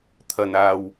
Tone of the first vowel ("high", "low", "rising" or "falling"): low